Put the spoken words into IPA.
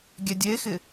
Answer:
ɡʲ ɛ dʲ e x ɪ

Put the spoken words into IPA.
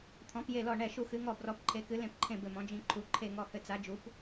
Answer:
t̪ʰ ɔ̃˨˥ p j e˦˨ l ɔ˦˨ ɳ ɛ˦˨ ʃ u˦˨ x ɨ˨˥ ŋ ɔ˦˨ b r ɔ˨˥ p ǃʰ e˨˥ k ɨ˨˥ l ẽ˦˨ p ǃʰ ẽ˦˨ b ɘ˦˨ m ɔ̃˨˥ d͡ʒ ĩ˦˨ ǃʰ u˨˥ ǃʰ e˦˨ ŋ ɔ˦˨ h ɘ˦˨ t͡s a˨˥ d͡ʒ u˨˥ p

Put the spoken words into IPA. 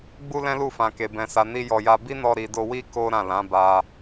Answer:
ɡ͡b u˦ l ɛ̃˦ l u˦˨ f ã˨ k e˨ b ɛ̃˨ s a˨ n i˧ j ɔ˧ j a˦ b i˦ n ɔ˧ ɾ i˨ d o˧ w i˦ k o˦ ɾ ã˦˨ l ã˨˦ b a˧

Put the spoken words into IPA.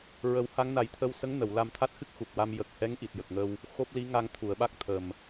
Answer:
ɹ ə˨˩˦ w h a˧˥ ŋ n a˨˩˦ j t̪ʰ ə˧ w s ə˧˥ ŋ n ə˨˩˨ w l a˧ m t̪ʰ a˦˥ t̚ x ɨ˦˥ k̚ x u˨˩ k̚ w a˧ m j ə˨˩ k̚ h ɛ˧˥ ŋ ʔ i˨˩ t̚ j ə˨˩ k̚ ŋ ə˧ w | x o˦˥ p̚ l i˧˥ ŋ a˧ ŋ t̪ʰ u˨˩˨ ə̯ ɓ a˦˥ k̚ t̪ʰ ə˨˩ m

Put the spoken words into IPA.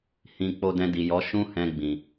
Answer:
h ĩ˧ k͡p o˧ d ɛ̃˧ d i˨ j ɔ˨˦ ʃ ũ˦ h ɛ̃˧ ɡ͡b ĩ˨

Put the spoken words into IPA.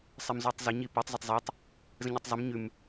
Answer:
sˤ ɪ m z u tˤ z ɪ ɲ i p u tˤ z ə tˤ zˤ ʉ tˤ | z ə̃ ɲ u tˤ zˤ ə m ɲ ʉ m

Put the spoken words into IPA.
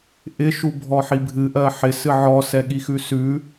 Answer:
ʔ ɪ ʃ u bʱ ɔ ħ i bʱ ɨ ʔ ɜ ħ ɪ s ɨ ʕ ɔ s ɛ ɠ i x ʉ s ʉ

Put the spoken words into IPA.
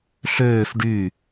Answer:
ɬ øː f ɖ y

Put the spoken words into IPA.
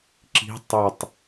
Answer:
ǁ i̤ tˤ ɵ tˤ

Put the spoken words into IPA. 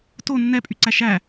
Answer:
t o nː ɛ pʼ y ǀ æ ʃ æ

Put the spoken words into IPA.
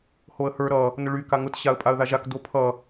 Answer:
h o ə̯ h ə˞ ɾ ʌ | n ʊ ɭ y k a ŋ ʊ t ɕ a ə̯ pʼ a ə̯ ð a ʒ a k d o pʰ ʌ

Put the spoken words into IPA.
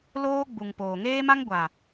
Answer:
l oː˦ ɡ͡b u˨ ŋ p oː˨ ŋ eː˦ m a˦ ŋ ɡʷ a˨

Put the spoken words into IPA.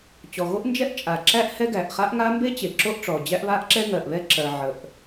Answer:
t͡ɕ ɔ˩ ɣ o˥ ʔ n d͡ʒ ɛ˥ ʔ t͡ʃʼ a˩ ǁ æ˥ ʔ h ɛ˥ ɡ æ˩ ʔ χ a˥ ʔ ŋ a˥ m b e˥ t͡ɕ e˩ ǁ o˥ ʔ ʈ͡ʂ ɔ˩ d͡ʑ æ˥ ʔ β a˥ ʔ ǁ ɛ˥ ŋ ɜ˩ ʔ β ɛ˥ ǁ ɜ˩ ʕ ə˩ ʔ

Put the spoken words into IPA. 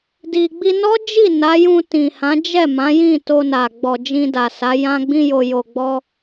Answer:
d i˧ ɡ͡b i˧ n ɔ˦ d͡ʒ i˦˨ n a˨˦ j ũ˧ t ĩ˨ h ã˨˦ d͡ʒ ɛ˦˨ m ã˨˦ j ĩ˦˨ t o˧ n a˨ ɡ͡b ɔ˨ d͡ʒ ĩ˧ d a˨ s a˨˦ j ã˧ ɡ͡b ĩ˧ j o˨ j o˨ ɡ͡b ɔ˧

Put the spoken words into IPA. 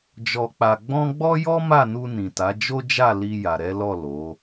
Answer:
d͡ʒ ɔ˧ k͡p a˧ ɡ͡b ɔ̃˦ ɡ͡b ɔ˦ j ɔ˦ m a˦˨ n u˧ n ĩ˨ t a˨˦ d͡ʒ o˦ d͡ʒ a˦˨ l i˧ j a˨ ɾ ɛ˨˦ l ɔ˦˨ l o˨˦

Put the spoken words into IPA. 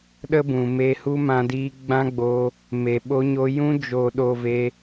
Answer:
ɗ ə˦ b ũ˨ m e˧ h u˦ m ã˧ d iː˧ ɡ͡b ã˦ ɡ͡b o˧ | m e˨ ɓ o˧ ɲ o˧ j ũ˧ d͡ʒ o˨ ɗ o˨ v e˧

